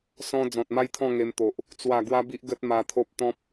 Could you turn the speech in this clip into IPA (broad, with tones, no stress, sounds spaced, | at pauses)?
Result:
s ɔ̃˧ d͡z ɔ̃˨ t̚ m a˦ j t̪ʰ ɔ̃˥˧ ŋ e˧ m t̪ o˨ ʔ | t͡s w a˨˩ ɡ w a˦ b i˦ ʔ ɡ ə˦ t̚ m a˧ t̪ʰ o˦ p̚ t̪ ɔ̃˦ p̚